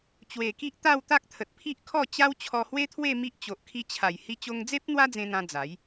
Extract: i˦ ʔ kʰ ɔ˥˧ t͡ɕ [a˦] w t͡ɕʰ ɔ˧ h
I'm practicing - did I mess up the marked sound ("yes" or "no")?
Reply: no